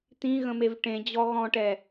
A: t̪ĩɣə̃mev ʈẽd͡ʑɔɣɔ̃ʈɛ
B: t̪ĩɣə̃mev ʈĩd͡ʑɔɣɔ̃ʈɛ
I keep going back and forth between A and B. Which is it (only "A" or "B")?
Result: A